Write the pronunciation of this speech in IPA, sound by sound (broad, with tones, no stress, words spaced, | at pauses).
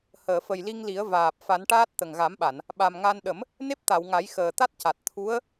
həː˨˩˨fə˨˩jli˧ŋli˨˩˦ə̯ vaː˨˩p̚ fa˨˩˦nʈaː˦˥t̚ t̪ə˨˩ŋɣa˨˩˦mɓa˨˩˨n | ɓa˨˩mŋa˧n ɗə˨˩˦m | ne˦˥p̚t̪a˨˩˨wŋa˨˩˦j xəː˨˩t̪a˦˥t̚ca˨˩t̚ t̪ʰu˧˥ə̯